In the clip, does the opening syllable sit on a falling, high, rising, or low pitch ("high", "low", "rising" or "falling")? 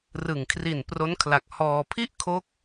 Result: low